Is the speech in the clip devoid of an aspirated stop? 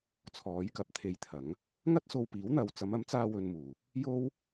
no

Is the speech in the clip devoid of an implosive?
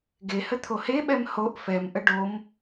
no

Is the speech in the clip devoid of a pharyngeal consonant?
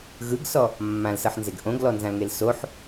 no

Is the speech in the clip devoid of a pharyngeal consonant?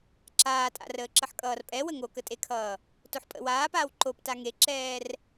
no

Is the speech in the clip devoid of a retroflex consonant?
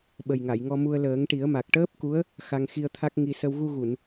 no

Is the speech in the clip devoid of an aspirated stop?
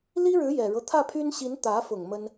no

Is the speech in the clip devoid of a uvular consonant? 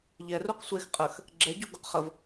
no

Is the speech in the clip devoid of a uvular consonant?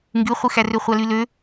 no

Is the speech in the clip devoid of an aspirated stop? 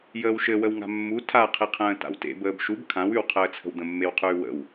no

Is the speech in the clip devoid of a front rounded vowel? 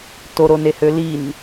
no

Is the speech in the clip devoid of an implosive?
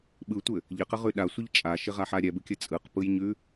no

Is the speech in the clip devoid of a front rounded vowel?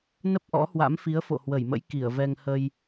yes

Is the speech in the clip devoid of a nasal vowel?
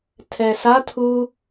yes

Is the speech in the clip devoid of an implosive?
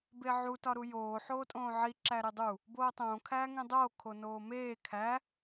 yes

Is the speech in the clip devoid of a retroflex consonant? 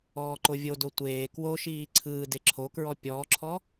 yes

